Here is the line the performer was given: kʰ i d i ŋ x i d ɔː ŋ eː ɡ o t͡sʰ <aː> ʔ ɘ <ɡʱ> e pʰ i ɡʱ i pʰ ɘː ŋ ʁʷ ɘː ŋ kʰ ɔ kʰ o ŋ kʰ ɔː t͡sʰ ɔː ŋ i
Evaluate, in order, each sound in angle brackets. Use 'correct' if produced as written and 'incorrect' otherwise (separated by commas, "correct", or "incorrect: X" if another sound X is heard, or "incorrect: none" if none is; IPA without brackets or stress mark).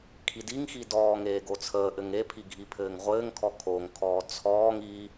incorrect: əː, incorrect: ŋ